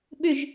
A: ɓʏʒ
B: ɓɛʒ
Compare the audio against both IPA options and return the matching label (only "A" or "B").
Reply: A